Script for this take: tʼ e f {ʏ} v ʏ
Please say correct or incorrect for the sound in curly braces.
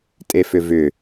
correct